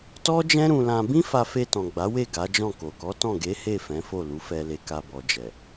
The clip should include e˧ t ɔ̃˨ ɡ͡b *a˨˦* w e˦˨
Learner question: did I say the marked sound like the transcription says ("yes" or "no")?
yes